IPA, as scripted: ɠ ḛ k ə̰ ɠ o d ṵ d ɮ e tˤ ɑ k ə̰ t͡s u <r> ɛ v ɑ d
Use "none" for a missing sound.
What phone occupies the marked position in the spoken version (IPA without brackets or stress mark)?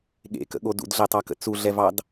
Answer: ɮ